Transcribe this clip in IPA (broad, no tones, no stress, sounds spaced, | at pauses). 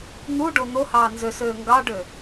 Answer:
n̪ u ɖ o n̪ o h ɑː n z ø s øː ŋ ɡ ɑ ɖ ø